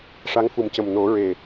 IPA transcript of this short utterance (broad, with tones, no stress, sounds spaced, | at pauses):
ʂ a˧˥ ŋ f u˨˩ m c ə˨˩ m n o˨˩˦ ɹ e˨˩